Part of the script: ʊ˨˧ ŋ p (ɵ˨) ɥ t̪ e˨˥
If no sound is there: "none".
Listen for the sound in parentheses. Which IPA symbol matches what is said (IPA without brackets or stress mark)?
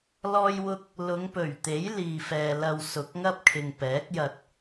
ɵ˨˩